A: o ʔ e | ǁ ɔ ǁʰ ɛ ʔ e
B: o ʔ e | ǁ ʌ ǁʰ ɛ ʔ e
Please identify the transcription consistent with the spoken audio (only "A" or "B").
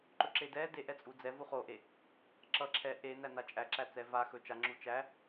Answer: B